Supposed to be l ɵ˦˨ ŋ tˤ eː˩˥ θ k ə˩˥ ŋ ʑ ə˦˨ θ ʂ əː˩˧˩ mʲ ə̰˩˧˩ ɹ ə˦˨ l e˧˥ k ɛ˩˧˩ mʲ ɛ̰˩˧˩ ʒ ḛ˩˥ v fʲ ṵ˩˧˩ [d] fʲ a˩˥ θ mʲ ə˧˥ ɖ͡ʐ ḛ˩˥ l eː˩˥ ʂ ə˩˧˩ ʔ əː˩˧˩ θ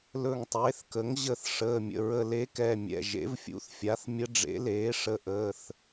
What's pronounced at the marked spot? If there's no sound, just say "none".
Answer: θ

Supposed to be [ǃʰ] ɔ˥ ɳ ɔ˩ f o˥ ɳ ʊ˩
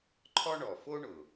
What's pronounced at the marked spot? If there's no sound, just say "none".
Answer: ǃʰ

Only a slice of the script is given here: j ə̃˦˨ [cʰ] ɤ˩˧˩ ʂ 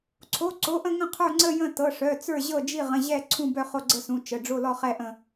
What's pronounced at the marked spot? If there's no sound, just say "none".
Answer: t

